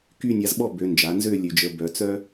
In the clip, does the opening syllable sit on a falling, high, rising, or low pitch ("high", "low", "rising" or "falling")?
falling